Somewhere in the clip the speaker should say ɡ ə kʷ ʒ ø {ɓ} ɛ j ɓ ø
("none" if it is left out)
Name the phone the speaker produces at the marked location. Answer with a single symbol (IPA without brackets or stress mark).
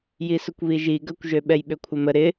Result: ɓ